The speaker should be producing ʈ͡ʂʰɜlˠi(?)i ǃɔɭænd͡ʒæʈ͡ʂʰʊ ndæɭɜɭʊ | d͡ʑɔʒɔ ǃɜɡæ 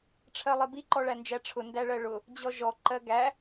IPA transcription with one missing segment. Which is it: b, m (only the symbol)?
b